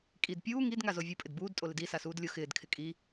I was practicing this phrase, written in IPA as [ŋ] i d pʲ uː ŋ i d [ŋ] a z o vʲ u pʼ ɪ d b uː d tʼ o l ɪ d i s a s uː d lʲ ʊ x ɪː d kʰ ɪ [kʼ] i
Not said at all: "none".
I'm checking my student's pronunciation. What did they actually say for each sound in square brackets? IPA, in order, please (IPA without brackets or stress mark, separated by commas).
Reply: kʼ, ŋ, kʼ